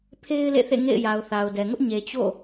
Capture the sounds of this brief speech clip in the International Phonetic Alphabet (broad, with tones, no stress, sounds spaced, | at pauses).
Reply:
pʰ e˦ ɪ̯ l ḛ˦˨ θ ḛ˦˨ ŋ ḛ˦˨ ɪ̯ j a˨ ʊ̯ θ a˨ ʊ̯ d ɛ˨ ŋ ʊ˦ ʔ ɲ e˨ t͡ɕ o̰˦˨